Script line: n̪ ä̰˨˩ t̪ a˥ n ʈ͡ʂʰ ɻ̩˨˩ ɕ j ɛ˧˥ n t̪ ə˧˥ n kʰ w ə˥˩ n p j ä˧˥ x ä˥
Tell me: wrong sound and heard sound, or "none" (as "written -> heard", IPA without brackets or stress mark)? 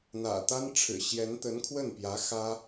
none